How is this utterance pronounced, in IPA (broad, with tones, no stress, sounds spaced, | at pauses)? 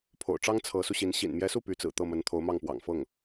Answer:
pʰ o̰˨˩ ʊ̯ ʈ͡ʂ ɑ˥ ŋ t͡sʰ ɤ˧˥ s u˧ ɕ i˧˥ n ɕ ḭ˨˩ n m j ɛ˧˥ s u˥˩ p y˧˥ t͡s ɹ̩˨˩ t̪ ɤ˥˩ m ə˧˥ n t̪ʰ o˧˥ ʊ̯ m ɑ˥˩ ŋ p w ɑ̰˨˩ ŋ f ɤ˥˩ ŋ